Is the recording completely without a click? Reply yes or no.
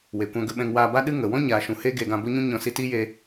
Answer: yes